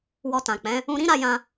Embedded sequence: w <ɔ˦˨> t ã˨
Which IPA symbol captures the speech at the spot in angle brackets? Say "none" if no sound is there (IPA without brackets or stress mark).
ɔ˧